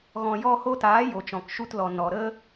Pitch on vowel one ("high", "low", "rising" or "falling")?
low